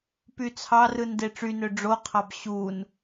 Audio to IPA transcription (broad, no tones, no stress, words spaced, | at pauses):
pyt͡sʰɑrɯn deʈ͡ʂynø ɖ͡ʐoqʰɑb ɕun